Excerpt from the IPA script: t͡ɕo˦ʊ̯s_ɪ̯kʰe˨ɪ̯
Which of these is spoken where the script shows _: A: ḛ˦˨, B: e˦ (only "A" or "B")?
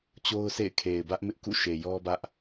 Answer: A